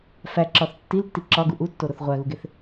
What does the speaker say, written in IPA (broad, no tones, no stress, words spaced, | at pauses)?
fæǁɒθ tːiltːi ǁɒɡu ʔutːoɾoθ ʁʷæɣuɡeθ